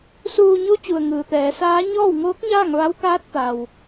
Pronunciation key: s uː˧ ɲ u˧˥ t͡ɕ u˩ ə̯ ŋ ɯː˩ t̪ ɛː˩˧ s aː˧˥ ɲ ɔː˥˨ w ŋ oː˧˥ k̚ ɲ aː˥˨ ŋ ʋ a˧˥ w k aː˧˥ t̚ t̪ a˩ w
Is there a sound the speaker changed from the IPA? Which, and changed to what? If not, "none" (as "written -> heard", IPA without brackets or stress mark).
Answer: none